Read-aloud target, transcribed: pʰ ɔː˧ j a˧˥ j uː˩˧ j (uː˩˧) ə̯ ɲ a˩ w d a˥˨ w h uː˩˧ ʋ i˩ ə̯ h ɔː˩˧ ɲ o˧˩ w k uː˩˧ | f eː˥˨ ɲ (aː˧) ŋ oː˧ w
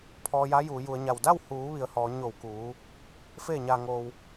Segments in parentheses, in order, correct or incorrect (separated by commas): incorrect, correct